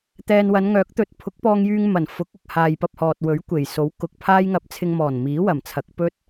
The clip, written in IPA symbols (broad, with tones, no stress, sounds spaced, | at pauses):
t̪ ɛː˨ n w ɐ˨˧ n ŋ œː˨˥ k̚ t̪ ɵ˨ t̚ pʰ ʊ˨˥ k̚ p ɔː˧ ŋ j yː˧ ŋ m ɐ˨˩ n f ʊ˨˥ k̚ ʊ˧ k̚ h aː˨ j p ɐ˧ p̚ h ɔː˨ t̚ w ɵ˨˥ ɥ kʷ e˨˩ j s o˨˥ w k ʊ˨˥ k̚ pʰ aː˥ j ŋ ɐ˧ p̚ t͡sʰ ɪ˧ ŋ m ɔː˨˩ n m iː˨˥ w ɐ˨˩ m t͡sʰ ɐ˨˥ k̚ p ɵ˥ t̚